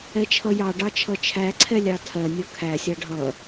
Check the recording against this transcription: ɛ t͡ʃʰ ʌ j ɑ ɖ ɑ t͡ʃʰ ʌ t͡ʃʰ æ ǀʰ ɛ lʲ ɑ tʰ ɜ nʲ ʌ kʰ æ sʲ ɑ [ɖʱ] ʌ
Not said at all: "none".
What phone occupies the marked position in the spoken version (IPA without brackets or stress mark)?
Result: ɖʱ